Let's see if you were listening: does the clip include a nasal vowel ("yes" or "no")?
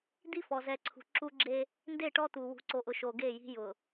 no